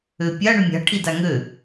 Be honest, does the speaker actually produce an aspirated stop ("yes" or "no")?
yes